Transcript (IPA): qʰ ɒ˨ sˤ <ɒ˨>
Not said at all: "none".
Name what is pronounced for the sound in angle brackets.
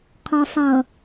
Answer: ʌ˨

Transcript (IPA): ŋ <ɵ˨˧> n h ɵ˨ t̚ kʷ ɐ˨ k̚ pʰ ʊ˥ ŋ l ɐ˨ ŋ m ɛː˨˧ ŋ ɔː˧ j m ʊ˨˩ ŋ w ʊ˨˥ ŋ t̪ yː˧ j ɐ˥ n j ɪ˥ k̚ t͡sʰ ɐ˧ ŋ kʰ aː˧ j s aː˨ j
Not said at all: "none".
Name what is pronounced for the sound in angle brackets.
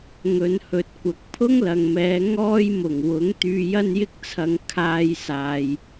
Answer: ɵ˨˧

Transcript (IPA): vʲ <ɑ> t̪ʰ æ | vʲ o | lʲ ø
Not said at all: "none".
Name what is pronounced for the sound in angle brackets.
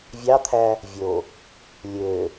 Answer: ɑ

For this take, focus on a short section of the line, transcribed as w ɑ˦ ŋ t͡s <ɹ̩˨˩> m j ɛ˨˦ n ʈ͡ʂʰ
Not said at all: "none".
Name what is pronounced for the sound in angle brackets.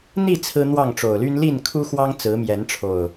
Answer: ɹ̩˨˦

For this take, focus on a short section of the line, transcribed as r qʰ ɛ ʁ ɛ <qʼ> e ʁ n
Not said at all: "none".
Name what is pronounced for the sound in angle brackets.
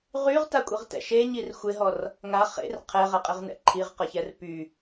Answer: qʼ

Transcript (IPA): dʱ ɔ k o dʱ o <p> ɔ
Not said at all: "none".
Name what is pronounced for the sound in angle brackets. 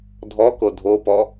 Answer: p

